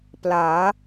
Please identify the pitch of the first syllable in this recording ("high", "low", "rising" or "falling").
rising